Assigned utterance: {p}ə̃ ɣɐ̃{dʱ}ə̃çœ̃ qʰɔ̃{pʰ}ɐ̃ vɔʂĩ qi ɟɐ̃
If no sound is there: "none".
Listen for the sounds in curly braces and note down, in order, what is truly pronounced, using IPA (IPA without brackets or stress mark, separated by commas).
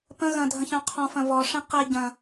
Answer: p, dʱ, f